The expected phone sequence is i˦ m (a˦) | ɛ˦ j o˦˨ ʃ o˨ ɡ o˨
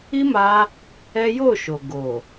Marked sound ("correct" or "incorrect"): incorrect